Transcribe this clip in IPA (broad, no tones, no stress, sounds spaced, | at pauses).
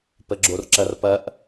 p ə ɡ͡ǁ o r ǁ ɐ r p ɐ ʔ